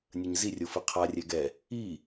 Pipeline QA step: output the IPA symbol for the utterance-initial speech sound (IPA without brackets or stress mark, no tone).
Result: nʲ